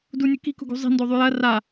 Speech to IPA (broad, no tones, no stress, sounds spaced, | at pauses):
d u nʲ ɵ k i̤ k ṳ ɡ ṳ zˤ i̤ n d o ðˤ y j ɐ r a